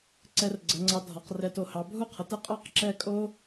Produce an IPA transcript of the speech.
ǀ ɛ˧ r ɡ͡ǀ ə˩˧ ŋ͡ǀ ɑ˧ dʱ ɒ˩˧ q r ɛ˧˩ t o˧˩ h ɑ˩˧ bʱ u˥ qʰ ə˩˧ t ɛ˥ qʼ ɑ˥ q ǁ ɛ˥˧ kʼ o˥

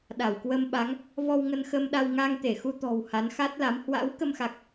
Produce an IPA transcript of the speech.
ɗ a˧˩ w k w ə˧ m ɓ a˨˦ ŋ | v ɔ˧ w ŋ ə˧ n x ə˧ m ɗ a˧ w ŋ a˧ ŋ t̪ e˧˩ x u˧ t̪ ɔ̤˨˩ w h a˨˦ n x a˦˥ t̚ l a˨˦ m h w a̰˧˥ w k ə˧ m x a˨˩ k̚

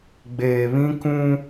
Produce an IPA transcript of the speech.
ɡ͡b eː˨ β ĩ˦ k ũ˦

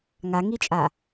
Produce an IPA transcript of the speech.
ŋ a ŋ i t͡ʃʼ a

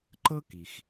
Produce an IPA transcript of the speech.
ǃ ɤ˥ k i˩ x

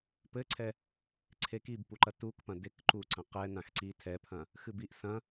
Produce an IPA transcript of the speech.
p ɘ ǀʰ ɛ | ǀʰ e k i b p u ǃ ɐ t u k p ɐ̃ d e k ǃ u ǀ ɐ̃ q ɛ n ã x ǀ i tʰ ɛ pʰ ɐ̃ | x ɨ b i ʔ s ɐ̃

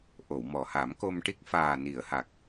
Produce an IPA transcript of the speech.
ʔ o˨˩˨ w m ɔ˨˩ h a˨˩˦ m k o˧ m ʈ i˦˥ k̚ f aː˨˩ n i˨˩˨ ə̯ h a˨˩ k̚

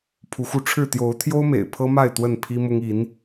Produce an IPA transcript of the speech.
pʰ u˨˦ x u˧ ʈ͡ʂʰ ɻ̩˥˨ t̪ j o˨˦ ʊ̯ t̪ʰ j o˦ ʊ̯ m ḛ˨˩ ɪ̯ pʰ ɤ˦ m a˥˨ ɪ̯ t̪ w ə˥˨ n pʰ i˦ m ʊ˦ ŋ i˨˦ n

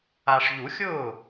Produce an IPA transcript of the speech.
a˨ ʂ ʎ u˨˩˦ xʲ ʊː˥˩

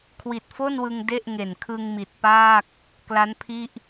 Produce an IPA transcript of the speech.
kʰ w i˨˩ t̚ f o˥˩ n w ɯ˧ ŋ d e˥˩ ʔ ŋ e˨˩ n kʰ ɯ˧ ŋ m i˨˩ t̚ p aː˥˩ k̚ | k l a˦˥ n pʰ i˥˩ ʔ

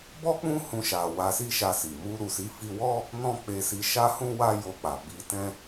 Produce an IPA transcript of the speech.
b ɔ˦ k͡p ũ˦ h ũ˧ ʃ a˨ w a˧ s i˦ ʃ a˧ s i˨ m u˧ ɾ u˨ s i˨˦ f i˧ w ɔ˦ | n ɔ̃˦ k͡p e˧ s i˧ ʃ a˦ h ũ˦ w a˦ j o˧ k͡p a˨ b i˧ t ɛ̃˦

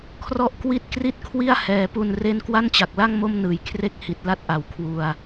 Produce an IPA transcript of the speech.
kʰ r ɔ˥˩ ʔ k w i˥˩ t̚ k r i˥˩ t̚ kʰ w i˥˩ a̯ h ɛː˩˦ p u˧ n r e˥˩ n k w a˥˩ n t͡ɕ a˨˩ k̚ l a˥˩ ŋ m o˥˩ m n ɯː˨˩ j kʰ r e˥˩ k̚ h i˨˩ t̚ l a˥˩ t̚ ʔ a˨˩ w kʰ w u˧ a̯

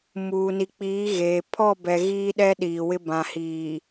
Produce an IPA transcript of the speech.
m uː˨ n i˨ k͡p iː˨˦ ɣ e˨ pʰ ɔ˦˨ b ɛ˨ ɣ iː˦ ɗ ɛ˦ ɗ iː˨ w ɪ˦ b ã˨ h iː˨

